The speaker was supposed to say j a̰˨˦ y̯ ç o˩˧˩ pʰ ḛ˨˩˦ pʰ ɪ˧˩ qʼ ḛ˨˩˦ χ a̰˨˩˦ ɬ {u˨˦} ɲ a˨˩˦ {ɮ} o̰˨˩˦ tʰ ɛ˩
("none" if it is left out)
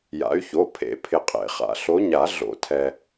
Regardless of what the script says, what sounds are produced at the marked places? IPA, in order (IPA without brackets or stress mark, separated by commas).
o˨˦, ɮ